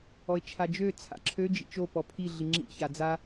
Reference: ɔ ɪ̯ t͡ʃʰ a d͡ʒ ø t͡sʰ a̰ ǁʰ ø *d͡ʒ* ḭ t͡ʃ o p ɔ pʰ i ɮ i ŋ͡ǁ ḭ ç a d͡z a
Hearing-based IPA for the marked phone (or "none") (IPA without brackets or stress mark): d͡ʒ